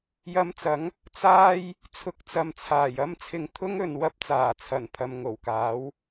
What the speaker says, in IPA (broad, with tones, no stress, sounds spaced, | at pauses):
j ɐ˧ m t͡s ɐ˨˥ ŋ | t͡s aː˥ j | t͡sʰ ʊ˨˥ k̚ t͡s ɐ˨ m t͡sʰ aː˨˩ j ɐ˥ m t͡sʰ ɪ˨ ŋ t̪ʰ ʊ˥ ŋ ɵ˨˧ n w ɐ˧ p̚ t͡s aː˨˩ t͡sʰ ɐ˨˩ n pʰ ɐ˨ m ŋ o˨˩ w k aː˨˥ w